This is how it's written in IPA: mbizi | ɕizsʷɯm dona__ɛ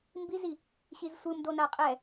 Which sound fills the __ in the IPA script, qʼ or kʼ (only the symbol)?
qʼ